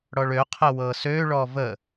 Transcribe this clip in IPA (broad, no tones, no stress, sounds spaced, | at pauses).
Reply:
ɽ ɔ ɭ ø qʰ ə w ɤ s ø ɭ ɔ v ə